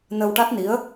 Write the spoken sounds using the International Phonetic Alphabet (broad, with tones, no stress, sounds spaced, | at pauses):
n ə˧ w ʈ a˦˥ t̚ n i˧˥ ə̯